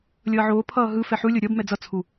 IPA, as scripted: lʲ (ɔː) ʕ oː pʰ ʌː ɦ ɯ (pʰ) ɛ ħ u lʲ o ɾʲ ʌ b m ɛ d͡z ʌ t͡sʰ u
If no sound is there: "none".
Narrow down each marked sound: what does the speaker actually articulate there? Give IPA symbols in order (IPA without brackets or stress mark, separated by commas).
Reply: ʌː, f